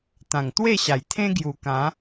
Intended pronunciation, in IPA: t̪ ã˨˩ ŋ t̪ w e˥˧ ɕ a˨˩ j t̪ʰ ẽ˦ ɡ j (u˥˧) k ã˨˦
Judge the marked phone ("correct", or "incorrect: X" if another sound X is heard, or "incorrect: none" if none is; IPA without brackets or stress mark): incorrect: u˨˩